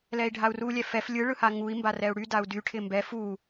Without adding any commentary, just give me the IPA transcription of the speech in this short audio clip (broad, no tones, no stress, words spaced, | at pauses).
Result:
lɛi̯ɖʱau̯ru lʲɛfɛf lʲɯ ɭɯhaŋui̯ mbarɛu̯ɽy dau̯dy ʈʰɪmbɛ fu